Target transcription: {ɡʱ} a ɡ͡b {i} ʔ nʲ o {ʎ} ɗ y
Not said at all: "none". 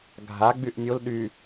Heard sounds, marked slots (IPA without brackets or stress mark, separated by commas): ɡʱ, y, l